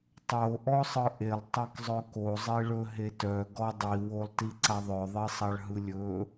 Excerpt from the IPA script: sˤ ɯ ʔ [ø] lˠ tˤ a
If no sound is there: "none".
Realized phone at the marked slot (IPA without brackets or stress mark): e